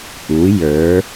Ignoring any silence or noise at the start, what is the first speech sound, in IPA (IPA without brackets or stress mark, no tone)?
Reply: ʔ